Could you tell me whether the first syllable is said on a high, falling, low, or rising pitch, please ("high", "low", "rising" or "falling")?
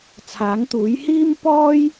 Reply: rising